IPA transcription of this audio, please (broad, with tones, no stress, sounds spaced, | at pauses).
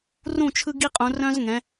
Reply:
r ũ˦˨ t͡ʃʰ ɯ˦ ɡ i˦ qʼ ũ˨˦ r œ̃˦ z ŋ ɛ̃˨˦